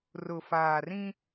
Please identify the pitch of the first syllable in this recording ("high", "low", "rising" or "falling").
low